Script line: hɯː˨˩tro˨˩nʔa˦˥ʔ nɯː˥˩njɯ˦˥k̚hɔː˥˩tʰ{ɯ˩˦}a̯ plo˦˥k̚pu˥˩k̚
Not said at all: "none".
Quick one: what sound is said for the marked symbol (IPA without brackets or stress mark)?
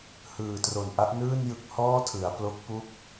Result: ɯ˩˦